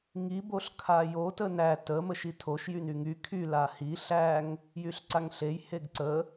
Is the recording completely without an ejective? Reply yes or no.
yes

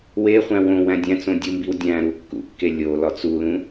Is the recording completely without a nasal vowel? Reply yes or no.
no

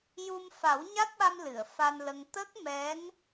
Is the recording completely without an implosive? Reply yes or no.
no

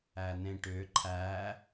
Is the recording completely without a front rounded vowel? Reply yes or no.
no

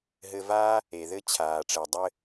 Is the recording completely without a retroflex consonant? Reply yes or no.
no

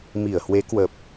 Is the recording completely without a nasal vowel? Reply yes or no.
yes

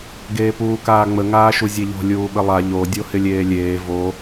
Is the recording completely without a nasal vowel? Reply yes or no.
yes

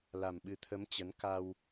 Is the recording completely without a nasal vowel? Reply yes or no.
yes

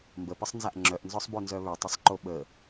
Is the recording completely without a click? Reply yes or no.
no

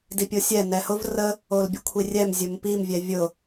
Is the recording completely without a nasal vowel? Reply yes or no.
yes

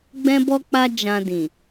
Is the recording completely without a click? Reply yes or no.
yes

